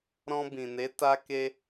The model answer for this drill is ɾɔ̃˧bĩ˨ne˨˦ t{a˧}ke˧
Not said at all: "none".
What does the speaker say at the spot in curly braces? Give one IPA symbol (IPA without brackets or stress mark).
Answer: a˧